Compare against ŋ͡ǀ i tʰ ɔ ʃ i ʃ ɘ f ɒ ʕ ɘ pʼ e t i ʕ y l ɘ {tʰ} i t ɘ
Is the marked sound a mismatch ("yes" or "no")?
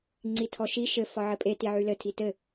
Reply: no